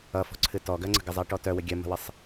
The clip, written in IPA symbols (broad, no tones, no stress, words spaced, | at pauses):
ʌfɔ̤ǀʰɨ tɔɡɜŋ͡ǀə̤ɡə zˤɜʈɔtœwə ɡʲɜmə̤wəsˤ